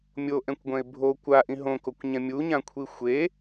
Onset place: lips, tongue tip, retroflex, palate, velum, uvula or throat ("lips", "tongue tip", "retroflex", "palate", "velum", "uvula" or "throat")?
lips